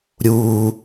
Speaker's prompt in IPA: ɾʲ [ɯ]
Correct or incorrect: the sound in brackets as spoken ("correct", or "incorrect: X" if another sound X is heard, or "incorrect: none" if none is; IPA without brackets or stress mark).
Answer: incorrect: u